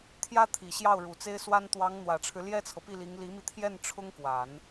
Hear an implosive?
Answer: no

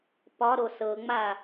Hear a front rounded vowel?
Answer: no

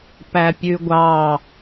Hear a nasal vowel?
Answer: no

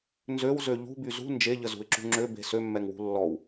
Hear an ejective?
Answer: no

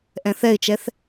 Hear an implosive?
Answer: no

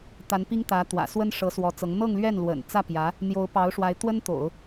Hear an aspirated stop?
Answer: no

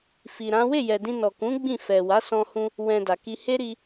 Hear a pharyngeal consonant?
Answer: no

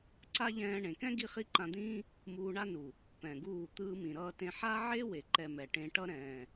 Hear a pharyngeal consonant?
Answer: yes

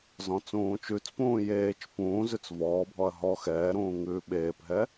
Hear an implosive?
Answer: yes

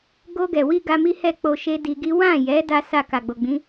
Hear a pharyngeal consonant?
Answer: no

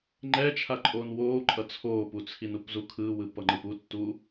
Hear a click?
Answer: yes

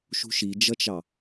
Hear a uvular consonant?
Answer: no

